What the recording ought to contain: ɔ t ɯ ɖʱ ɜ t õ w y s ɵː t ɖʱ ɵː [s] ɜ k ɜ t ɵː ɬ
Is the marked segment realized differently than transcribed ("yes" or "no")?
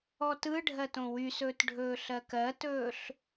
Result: yes